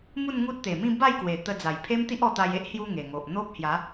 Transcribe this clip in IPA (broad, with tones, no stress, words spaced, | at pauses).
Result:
mu˥˧nŋu˦t̚t̪e˨˩ mĩ˥˧ ba˥˧jkwe˨˩ t̪ə˧d͡za˨˩jpʰe˦m t̪i˦ʔɔ˧t̪a˧j e˦ʔhju˧ ŋe˨˩ŋo˨ʔ n̪o˦p̚hja˨˦